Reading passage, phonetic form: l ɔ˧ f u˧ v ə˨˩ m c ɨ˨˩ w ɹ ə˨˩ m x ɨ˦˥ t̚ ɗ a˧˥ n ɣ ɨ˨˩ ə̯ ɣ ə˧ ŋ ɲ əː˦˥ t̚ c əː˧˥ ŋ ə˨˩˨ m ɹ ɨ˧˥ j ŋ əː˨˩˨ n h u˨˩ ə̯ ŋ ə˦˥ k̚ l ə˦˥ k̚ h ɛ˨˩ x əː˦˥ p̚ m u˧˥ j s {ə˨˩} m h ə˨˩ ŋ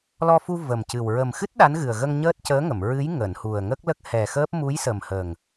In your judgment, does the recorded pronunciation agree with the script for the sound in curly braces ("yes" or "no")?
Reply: yes